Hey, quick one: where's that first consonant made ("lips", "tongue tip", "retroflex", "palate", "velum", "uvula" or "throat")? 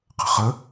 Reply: uvula